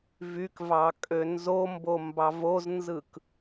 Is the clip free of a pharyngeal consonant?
yes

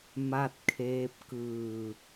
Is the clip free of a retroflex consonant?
yes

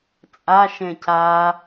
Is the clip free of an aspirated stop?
yes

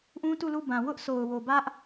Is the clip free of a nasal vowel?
no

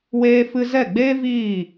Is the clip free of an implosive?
yes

